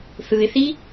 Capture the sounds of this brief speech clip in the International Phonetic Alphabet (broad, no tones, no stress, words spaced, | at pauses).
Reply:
θɯɪ̯θi